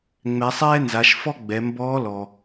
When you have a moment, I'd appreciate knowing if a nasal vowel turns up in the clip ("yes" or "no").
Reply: no